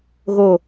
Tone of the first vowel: low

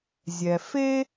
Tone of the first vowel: low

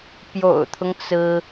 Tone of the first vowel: low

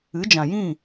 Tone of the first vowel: rising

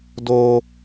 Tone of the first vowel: high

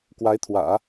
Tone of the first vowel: rising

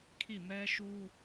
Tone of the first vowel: falling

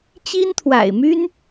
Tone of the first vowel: high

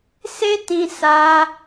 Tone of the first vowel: high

